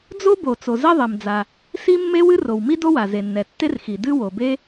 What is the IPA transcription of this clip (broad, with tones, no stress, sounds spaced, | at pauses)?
d͡z o˥ b o˩ t͡s o˩ z ɛ˥ ðˤ ɛ˩ m d͡z a˩ | s i˥ mː e˥ w ɨ˥ r o˩ w m i˥ d o˥ w a˩ z e˩ nː ɛ˩ tː e˥ r x i˩ d ɨ˥ w o˩ b e˥